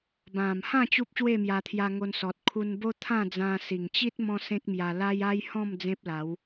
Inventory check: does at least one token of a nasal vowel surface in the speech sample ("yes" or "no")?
yes